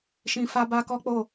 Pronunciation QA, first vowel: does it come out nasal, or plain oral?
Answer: nasal